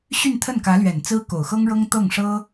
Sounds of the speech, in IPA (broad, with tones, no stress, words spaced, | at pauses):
ɕy˥˧nt̪ʰə˥˩nkä˧˥lɥɛ˨˩n t͡sɹ̩˥ko˨˩ʊ̯xɤ˥ŋɻɤ˥ŋ t̪ɤ˥˩ŋʂɤ˥